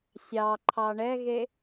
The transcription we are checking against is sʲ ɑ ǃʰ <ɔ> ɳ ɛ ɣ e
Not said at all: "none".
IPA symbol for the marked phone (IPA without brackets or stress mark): ɑ